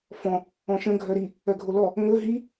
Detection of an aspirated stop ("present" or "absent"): absent